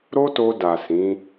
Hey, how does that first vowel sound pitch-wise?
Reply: high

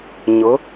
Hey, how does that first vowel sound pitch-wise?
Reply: rising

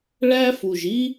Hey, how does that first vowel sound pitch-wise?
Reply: high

